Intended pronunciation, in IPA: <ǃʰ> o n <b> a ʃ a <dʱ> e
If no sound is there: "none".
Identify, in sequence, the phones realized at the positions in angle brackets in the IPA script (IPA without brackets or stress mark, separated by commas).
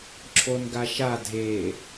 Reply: ǁʰ, ɡ, dʱ